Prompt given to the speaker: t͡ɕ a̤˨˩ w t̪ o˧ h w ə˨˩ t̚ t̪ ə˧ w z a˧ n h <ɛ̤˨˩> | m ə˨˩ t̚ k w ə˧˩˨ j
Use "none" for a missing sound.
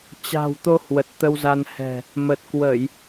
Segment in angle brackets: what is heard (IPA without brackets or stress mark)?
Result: ɛ̤˨˩